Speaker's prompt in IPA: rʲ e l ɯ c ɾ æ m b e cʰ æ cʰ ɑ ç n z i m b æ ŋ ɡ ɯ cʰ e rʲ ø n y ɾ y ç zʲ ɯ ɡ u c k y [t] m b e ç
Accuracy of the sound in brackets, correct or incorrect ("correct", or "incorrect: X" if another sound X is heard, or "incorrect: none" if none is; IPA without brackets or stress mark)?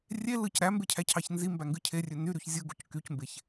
incorrect: c